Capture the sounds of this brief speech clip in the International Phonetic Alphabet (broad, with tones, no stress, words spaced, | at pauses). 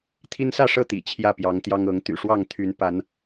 t̪ʰi˦nsä˥˨ʂɤ˥˨ t̪ḭ˨˩t͡ɕʰjä˥˨pjɑ˨˦ŋ t̪jɑ˦ŋ ɤ˨˦ŋ t̪y̰˨˩ʂwɑ˥˨ŋt̪ʰy˨˦n pa˨˦n